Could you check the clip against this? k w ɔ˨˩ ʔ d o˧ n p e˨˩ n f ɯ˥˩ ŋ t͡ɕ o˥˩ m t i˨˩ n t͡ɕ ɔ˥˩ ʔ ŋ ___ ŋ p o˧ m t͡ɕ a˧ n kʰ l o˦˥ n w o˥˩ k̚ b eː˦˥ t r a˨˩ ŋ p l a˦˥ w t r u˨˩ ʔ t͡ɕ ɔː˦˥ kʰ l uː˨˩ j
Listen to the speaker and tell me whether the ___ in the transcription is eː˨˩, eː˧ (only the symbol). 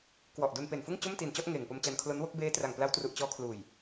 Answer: eː˨˩